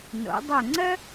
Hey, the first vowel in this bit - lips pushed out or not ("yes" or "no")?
yes